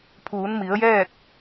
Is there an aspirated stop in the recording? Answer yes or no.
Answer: yes